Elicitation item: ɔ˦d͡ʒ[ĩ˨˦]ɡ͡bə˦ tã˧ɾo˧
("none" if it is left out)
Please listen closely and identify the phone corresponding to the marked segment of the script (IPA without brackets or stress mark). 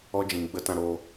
ĩ˨